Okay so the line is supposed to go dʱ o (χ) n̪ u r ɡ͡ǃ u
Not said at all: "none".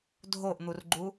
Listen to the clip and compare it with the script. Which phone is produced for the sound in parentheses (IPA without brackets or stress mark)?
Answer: ʔ